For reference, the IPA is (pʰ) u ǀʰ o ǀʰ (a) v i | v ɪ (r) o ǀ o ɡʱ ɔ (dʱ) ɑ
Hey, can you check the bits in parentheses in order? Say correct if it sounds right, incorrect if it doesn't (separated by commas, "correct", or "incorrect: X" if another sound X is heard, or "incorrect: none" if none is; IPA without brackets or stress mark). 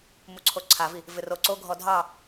incorrect: m, correct, correct, correct